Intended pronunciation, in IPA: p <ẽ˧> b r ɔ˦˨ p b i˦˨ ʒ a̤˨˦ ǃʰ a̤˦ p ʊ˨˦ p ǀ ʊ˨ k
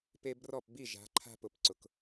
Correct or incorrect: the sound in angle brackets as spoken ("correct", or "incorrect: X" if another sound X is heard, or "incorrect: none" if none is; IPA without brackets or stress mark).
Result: incorrect: e˧